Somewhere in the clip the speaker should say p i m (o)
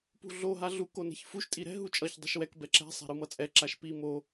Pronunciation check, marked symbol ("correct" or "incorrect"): correct